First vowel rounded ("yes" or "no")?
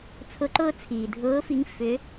yes